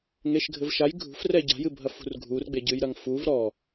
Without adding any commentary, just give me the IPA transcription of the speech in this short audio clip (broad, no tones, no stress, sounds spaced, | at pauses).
ŋ e ʃ ɡʱ ɘ v ʃ a j ɡʱ ṳ f r ɛ ɟ a̤ j ɨ bʱ ɐ f ṳ r ɡʱ u r ɡ͡b e ɟ ɨ j ɾ ɐ ŋ f u v ɾ ɔ